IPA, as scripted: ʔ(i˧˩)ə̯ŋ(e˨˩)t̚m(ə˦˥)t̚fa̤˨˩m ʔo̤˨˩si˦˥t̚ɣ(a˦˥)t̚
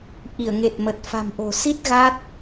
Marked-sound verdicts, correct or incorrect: correct, correct, incorrect: ə˨˩, correct

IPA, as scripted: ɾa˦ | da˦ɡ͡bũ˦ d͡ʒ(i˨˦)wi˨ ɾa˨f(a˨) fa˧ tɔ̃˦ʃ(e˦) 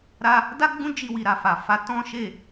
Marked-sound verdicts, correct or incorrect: incorrect: i˧, correct, incorrect: e˦˨

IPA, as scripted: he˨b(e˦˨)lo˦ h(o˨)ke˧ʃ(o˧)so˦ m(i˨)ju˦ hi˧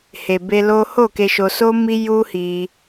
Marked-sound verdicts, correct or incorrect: incorrect: e˧, incorrect: o˦˨, correct, incorrect: i˦

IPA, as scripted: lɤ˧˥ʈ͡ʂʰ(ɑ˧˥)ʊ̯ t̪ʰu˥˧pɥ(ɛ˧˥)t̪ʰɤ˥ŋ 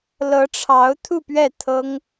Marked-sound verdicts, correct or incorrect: correct, incorrect: ɛ˥˩

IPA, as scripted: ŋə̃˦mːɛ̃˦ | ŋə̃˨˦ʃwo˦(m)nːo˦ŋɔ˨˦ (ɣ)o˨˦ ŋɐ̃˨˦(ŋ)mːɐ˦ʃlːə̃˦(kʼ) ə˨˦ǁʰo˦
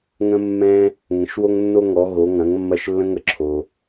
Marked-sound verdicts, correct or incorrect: incorrect: ŋ, correct, correct, incorrect: ŋ

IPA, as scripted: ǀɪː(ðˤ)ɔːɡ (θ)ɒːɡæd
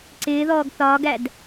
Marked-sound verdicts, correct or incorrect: incorrect: ð, correct

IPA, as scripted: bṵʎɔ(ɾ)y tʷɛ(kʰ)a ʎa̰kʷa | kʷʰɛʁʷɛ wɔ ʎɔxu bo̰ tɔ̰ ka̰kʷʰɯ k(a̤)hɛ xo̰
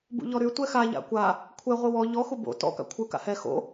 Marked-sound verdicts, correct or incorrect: correct, incorrect: x, incorrect: a̰

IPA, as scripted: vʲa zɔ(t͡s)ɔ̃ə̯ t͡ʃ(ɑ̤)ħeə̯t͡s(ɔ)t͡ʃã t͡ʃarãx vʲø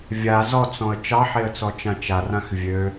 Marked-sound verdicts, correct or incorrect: correct, incorrect: ɑ, correct

